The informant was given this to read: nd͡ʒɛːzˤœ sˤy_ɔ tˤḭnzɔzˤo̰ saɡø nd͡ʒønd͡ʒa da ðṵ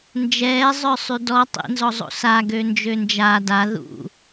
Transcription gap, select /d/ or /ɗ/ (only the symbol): d